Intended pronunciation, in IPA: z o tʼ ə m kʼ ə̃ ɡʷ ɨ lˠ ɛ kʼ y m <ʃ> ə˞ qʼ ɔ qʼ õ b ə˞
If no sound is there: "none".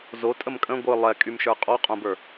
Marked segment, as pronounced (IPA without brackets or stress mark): ʃ